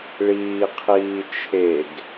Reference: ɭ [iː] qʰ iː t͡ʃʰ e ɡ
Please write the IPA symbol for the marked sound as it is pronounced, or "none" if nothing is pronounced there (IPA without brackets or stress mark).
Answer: iː